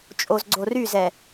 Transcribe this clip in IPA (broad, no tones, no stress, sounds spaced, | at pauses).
t͡ʃʼ o z ɡ͡ǀ o r y z ɛ